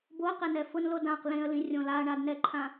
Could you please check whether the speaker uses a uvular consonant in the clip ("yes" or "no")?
yes